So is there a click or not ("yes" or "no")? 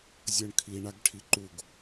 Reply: yes